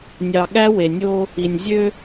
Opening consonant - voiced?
yes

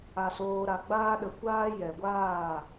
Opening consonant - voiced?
no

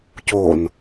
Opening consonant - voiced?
no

